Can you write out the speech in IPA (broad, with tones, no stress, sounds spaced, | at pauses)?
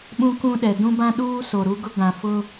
ɓ ũ˦ k ũ˦ ɗ ɛ˨ d ũ˦ b ã˦ ɗ uː˦ s o˨ ɾ u˦ ɡ ʊ˦ ɡ ã˨ f ʊ˦